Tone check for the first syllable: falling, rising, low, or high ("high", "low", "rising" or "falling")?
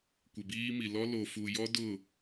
low